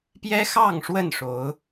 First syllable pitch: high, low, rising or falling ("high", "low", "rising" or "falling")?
high